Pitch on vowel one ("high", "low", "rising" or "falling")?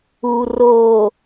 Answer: low